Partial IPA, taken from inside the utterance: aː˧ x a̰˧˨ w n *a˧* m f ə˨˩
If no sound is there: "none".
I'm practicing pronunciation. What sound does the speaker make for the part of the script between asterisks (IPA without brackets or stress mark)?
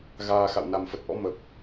a˨˩